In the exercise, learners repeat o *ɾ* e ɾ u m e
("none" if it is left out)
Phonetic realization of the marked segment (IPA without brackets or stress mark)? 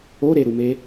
ɾ